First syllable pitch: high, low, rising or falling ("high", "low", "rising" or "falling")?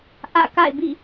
falling